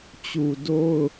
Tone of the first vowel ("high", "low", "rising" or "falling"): low